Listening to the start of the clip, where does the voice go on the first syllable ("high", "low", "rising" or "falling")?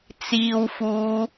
low